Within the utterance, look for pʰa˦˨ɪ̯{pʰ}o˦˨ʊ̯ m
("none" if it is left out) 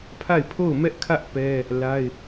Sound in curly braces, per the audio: pʰ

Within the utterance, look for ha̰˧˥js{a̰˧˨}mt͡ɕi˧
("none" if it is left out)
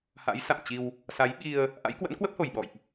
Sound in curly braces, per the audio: a̰˧˨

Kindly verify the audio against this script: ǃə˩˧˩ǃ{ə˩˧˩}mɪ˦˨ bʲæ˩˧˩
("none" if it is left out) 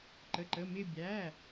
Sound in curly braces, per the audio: ə˩˧˩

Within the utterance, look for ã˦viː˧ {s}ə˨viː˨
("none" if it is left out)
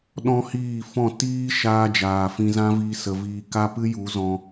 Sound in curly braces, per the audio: s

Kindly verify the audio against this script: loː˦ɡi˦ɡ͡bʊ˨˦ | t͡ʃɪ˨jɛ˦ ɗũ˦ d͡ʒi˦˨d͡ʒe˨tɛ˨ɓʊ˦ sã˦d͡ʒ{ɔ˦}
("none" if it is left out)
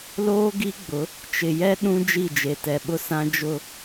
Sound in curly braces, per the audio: ʊ˦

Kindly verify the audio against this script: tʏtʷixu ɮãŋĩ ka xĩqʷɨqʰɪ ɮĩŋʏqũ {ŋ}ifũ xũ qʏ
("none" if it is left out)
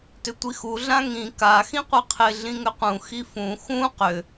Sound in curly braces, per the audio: x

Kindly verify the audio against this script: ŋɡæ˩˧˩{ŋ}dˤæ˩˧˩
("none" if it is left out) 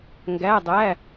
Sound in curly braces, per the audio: none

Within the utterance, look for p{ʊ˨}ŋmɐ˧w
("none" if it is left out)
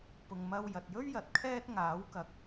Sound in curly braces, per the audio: ʊ˨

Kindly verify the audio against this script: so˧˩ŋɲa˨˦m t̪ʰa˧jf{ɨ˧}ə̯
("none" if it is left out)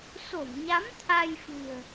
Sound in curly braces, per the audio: ɨ̤˨˩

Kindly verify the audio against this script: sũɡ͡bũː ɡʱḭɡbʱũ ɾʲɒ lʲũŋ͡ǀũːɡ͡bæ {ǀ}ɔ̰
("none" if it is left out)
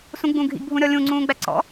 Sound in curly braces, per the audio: ǀ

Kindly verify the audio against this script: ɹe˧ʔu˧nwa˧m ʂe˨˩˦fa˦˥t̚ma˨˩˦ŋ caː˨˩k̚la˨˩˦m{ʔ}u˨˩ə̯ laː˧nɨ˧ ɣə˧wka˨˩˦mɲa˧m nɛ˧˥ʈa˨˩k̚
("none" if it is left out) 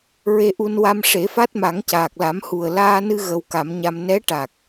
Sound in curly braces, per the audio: h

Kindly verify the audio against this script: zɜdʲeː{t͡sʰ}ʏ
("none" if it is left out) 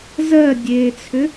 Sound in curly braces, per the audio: t͡sʰ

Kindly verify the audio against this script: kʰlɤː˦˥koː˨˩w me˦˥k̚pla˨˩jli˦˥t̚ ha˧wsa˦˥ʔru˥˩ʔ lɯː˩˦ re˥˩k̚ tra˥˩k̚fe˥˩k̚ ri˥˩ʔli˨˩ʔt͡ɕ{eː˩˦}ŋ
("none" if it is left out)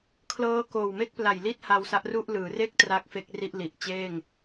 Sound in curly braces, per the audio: eː˥˩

